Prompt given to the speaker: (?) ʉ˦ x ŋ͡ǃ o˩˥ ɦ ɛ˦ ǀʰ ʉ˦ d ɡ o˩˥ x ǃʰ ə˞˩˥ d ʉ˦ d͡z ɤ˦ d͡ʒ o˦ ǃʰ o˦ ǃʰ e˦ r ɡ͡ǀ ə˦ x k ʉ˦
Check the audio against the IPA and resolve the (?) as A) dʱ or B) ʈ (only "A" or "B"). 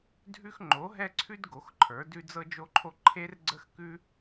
A